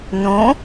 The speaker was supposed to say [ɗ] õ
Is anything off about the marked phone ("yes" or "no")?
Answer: yes